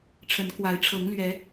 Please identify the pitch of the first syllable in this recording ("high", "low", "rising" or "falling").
rising